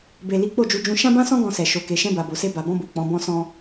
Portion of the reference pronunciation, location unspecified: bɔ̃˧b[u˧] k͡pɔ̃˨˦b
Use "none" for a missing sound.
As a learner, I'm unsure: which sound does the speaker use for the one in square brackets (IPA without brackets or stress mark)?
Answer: u˨